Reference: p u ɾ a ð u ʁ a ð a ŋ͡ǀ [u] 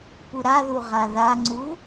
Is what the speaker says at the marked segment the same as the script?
yes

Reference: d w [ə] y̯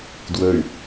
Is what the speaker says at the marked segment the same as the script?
yes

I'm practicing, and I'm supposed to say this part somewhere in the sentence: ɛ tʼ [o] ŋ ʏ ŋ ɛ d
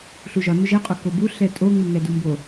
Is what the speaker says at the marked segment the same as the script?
yes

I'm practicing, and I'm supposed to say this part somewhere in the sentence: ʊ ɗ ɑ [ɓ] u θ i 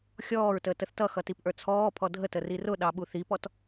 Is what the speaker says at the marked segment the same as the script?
yes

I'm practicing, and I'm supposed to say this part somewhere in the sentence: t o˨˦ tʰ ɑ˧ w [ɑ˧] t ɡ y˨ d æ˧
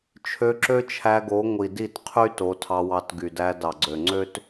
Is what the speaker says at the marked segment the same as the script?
yes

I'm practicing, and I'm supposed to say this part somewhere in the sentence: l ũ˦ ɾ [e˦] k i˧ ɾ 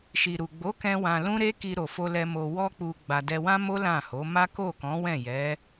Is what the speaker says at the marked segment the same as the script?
yes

